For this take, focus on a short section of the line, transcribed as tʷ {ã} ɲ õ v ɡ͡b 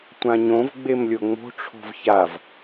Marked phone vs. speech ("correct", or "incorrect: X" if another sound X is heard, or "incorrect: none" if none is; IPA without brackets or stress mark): correct